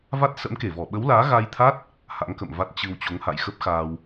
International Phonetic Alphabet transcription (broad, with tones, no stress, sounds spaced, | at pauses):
v a˦˥ t̚ s ə̰˧˥ m k e˧˩ v ɔ˧˩ ɓ ə˨˦ w l aː˨˦ ɣ a˧ j t̪ʰ a˦˥ t̚ | h a̰˧˥ ŋ k ə̰˧˨ m v a˦˥ t̚ t͡ɕ ɨ˧ w t͡ɕ o˨˦ ŋ h a̰˧˨ j x ə˦˥ p̚ x aː˧ w